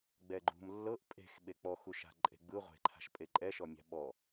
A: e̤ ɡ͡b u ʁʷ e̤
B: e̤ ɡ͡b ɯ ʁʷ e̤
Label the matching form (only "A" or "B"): B